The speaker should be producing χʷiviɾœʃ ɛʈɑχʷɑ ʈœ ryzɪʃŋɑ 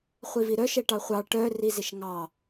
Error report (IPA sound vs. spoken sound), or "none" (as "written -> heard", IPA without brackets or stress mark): y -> i